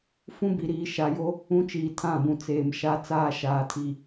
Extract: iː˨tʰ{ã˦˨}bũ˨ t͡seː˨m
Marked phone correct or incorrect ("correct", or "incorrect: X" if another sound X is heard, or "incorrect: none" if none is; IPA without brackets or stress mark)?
correct